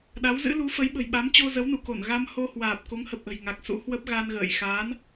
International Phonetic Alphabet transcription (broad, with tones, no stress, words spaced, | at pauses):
ɗa˨˦wzɨ̰˧˥lu˨˦ fə˨˦jɓə̤˨˩jɓa˨˦m t͡ɕo˧zə˨˦wnu˧˩ko˧˩n ɣa˧mho˧hwaː˨˩p̚ ko˨˦ŋhə˨˩p̚ʔə̤˨˩j ŋa˨˩k̚sṵ˧˥hwə˦˥p̚ ɣa˧nɣə̰ː˧˨j xaː˨˦n